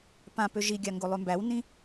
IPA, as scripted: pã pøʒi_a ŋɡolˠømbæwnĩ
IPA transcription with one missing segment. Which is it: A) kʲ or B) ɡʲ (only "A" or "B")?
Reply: B